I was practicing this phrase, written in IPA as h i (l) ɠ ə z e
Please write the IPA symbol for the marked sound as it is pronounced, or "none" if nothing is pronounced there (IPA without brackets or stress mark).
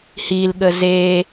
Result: l